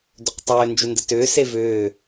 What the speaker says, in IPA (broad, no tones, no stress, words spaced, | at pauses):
dʏqtˤʏː nd͡ʒʏndətʏː sevʏː